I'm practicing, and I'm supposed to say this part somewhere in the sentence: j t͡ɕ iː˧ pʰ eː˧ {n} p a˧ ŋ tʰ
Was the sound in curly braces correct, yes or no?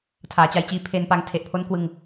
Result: yes